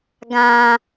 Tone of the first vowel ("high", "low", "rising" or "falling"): low